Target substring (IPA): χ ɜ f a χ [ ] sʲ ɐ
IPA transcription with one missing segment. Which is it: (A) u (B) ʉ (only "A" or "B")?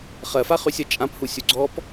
B